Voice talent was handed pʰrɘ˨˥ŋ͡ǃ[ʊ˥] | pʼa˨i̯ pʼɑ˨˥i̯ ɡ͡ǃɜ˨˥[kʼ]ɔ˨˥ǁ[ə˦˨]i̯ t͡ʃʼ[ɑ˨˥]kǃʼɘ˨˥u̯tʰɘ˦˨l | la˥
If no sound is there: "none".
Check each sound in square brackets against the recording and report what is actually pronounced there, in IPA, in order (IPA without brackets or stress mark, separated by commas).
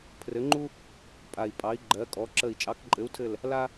u˥, kʼ, ə˦˨, ɑ˨˥